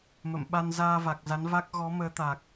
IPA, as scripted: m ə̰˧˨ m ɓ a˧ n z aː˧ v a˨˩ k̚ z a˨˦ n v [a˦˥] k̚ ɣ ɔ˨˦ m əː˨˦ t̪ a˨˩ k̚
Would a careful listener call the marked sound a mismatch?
no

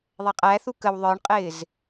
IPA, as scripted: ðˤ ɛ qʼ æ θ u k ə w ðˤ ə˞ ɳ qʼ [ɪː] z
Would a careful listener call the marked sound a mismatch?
no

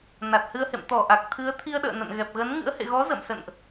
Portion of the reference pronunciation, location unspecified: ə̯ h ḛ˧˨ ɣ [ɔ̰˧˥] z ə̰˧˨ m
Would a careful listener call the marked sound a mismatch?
yes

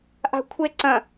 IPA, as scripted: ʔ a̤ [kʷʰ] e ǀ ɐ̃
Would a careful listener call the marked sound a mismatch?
no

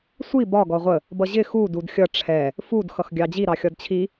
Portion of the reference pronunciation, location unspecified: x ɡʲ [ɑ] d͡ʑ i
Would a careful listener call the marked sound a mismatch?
no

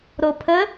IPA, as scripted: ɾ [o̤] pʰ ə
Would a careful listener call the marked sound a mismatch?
yes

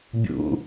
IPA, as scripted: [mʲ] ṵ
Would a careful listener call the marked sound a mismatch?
yes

